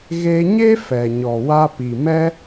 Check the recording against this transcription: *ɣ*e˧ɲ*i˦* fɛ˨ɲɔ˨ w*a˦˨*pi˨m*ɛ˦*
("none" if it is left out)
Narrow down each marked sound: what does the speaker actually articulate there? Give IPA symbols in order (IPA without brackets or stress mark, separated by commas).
ɣ, e˦, a˧, ɛ˦